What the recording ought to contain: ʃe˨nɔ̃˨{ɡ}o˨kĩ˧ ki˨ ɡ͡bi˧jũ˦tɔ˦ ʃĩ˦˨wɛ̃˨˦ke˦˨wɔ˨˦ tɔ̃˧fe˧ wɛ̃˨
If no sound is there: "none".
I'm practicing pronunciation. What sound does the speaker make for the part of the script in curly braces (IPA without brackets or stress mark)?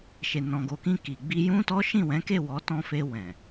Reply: ɡ